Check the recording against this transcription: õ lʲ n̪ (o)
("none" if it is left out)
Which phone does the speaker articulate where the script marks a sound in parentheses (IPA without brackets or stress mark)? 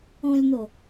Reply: o